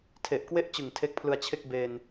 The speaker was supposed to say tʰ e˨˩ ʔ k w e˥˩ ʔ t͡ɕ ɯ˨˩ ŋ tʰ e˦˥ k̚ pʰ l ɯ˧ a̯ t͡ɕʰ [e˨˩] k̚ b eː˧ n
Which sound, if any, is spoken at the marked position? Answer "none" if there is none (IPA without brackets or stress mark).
e˥˩